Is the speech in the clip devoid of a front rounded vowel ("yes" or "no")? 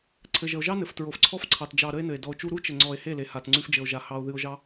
yes